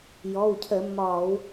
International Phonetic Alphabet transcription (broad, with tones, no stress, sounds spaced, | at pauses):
j ɔ˩˧˩ w cʰ ə˧˩˧ mː ɒ˧˩˧ w